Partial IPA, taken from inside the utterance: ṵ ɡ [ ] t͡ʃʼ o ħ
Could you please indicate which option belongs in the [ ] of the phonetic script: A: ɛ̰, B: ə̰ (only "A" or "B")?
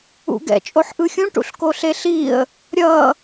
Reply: A